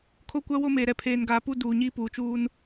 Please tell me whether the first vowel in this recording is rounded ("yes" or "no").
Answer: yes